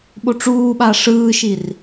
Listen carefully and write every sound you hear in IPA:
ɓ o ʈ͡ʂ uː ɓ a ʂ ɯː ʃ i r

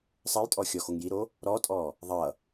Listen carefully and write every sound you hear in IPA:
sˤ ə j tʼ ɔ xʲ ɔ x o ŋ j i ɾ o | ɾ ɔ tʼ ɔ | ðˤ ʌ

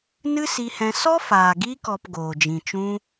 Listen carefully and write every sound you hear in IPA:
n ɨ˦ s i˧ h ɛ̃˧ s ɔ˦ f aː˨ ɡ iː˧ k ɔ˨ p ɡ oː˨ d͡ʒ ĩ˨ t͡ʃ ũ˧

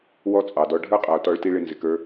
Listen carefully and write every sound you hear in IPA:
w ɔ˥ t͡sʼ ɑ˩ d ɔ˧ ɖʱ ə˞˥ qʼ ʌ˩ o̯ t ɔ˧ ɭ t i˧ ɭ ɪ˧ n z ɪ˩ k ə˞˧

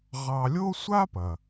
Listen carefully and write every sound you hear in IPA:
ʁ ɑ˧ lʲ o˥ sʷ a˥ p ɐ˩

